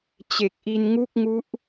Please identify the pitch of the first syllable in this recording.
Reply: low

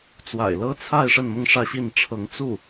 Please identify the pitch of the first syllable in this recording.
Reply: low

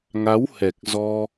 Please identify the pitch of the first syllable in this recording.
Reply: rising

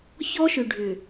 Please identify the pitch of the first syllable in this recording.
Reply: high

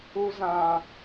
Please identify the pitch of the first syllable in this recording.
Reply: high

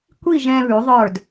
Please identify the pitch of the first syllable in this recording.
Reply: falling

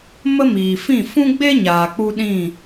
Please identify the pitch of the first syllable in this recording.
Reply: high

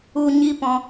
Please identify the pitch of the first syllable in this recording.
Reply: high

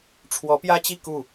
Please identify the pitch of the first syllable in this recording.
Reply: rising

